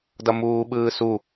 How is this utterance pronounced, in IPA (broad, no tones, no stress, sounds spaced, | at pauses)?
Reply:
d ʌ m uː ɓ ɯː s u